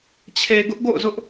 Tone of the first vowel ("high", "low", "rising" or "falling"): low